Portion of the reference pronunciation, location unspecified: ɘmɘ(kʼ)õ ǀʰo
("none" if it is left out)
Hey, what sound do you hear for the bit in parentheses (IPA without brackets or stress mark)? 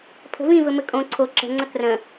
kʼ